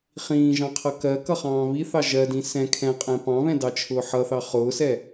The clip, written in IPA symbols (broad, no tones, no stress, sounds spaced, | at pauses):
χ ĩː ʒ ɑ̃ qʰ ʌ k ɜ k ʌ χ ɑ̃ː β i θ ɑ ʒ ɜ d ĩ s ɛ̃ kʰ ɛ̃ qʼ ɛ̃ p ɑ̃ β ɛ̃ d ɑ t͡ʃʰ ʊː ħ ʌ θ ɑ χ ʊː s ɛ